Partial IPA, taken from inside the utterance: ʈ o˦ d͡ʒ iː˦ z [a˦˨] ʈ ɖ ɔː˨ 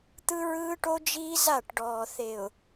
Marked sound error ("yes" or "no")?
no